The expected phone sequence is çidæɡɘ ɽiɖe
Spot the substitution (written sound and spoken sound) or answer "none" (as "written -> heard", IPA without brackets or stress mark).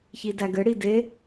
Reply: ɖ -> d